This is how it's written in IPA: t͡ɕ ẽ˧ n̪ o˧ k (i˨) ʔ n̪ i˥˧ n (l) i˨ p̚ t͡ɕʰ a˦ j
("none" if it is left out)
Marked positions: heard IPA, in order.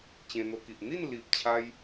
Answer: i˨, l

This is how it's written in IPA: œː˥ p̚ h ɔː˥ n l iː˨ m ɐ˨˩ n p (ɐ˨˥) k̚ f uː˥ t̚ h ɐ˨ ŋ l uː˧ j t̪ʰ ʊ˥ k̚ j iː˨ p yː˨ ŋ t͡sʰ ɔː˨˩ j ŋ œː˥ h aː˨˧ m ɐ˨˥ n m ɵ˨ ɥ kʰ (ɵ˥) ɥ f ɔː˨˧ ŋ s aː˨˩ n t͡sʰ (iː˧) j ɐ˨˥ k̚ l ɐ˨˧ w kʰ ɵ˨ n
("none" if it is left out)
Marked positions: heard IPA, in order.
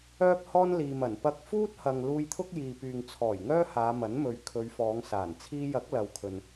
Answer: ɐ˧, ɵ˨˧, iː˧

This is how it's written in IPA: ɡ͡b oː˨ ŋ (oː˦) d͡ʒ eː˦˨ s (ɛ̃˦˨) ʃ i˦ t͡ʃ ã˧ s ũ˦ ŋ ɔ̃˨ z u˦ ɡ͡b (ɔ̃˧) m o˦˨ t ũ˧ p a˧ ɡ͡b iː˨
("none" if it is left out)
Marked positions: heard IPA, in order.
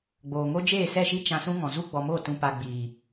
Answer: o˦, ɛ˦˨, ɔ˧

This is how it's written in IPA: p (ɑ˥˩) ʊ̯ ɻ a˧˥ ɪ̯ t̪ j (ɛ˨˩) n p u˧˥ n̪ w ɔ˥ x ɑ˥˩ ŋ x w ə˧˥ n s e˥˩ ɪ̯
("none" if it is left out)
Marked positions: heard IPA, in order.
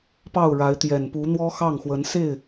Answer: ɑ˥˩, ɛ˨˩

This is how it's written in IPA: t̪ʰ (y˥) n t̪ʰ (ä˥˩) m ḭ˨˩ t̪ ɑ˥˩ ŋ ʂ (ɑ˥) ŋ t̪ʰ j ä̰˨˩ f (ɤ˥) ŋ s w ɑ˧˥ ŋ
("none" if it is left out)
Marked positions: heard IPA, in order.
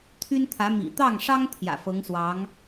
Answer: y˥, ä˧˥, ɑ˥, ɤ˧˥

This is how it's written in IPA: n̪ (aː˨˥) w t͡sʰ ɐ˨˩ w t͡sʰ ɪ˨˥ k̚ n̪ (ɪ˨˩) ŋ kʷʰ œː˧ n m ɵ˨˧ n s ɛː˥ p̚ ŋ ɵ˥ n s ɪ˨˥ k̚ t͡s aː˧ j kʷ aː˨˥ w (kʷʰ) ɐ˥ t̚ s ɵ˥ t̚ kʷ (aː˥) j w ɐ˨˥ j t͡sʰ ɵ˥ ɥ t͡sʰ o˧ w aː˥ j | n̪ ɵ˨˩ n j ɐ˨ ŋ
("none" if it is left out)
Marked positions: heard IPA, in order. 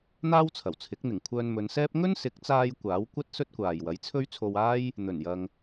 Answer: aː˥, ɪ˨˩, kʷ, aː˨

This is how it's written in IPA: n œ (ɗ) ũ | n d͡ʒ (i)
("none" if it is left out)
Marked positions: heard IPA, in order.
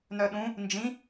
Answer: ɗ, ĩ

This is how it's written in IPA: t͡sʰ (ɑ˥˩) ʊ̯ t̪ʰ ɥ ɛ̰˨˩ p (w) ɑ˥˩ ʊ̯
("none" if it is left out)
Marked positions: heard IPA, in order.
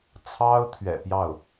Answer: ɑ˥, j

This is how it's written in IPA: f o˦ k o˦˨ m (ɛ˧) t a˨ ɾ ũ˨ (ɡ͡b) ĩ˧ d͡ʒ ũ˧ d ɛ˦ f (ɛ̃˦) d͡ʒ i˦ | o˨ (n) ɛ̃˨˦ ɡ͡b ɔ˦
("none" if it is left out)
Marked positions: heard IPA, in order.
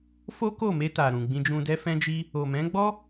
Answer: e˧, ɡ͡b, ɛ̃˦, m

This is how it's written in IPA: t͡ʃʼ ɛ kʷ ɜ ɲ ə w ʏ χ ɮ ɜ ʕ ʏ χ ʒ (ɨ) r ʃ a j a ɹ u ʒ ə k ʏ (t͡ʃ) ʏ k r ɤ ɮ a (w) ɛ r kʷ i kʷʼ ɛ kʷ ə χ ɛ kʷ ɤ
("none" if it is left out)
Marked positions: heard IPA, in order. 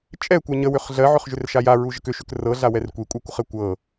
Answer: ʏ, ʃ, w

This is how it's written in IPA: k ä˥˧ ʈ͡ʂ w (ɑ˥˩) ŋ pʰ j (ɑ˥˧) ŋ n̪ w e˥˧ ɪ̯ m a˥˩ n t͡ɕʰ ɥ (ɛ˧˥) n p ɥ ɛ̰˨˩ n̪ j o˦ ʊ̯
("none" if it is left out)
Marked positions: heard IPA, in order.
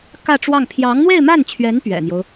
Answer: ɑ˥˩, ɑ˧˥, ɛ˧˥

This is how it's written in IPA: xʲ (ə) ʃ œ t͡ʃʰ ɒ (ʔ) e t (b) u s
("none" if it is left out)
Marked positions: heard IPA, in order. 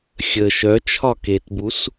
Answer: ə, k, b

